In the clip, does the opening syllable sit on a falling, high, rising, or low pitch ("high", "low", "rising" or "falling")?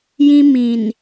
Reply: high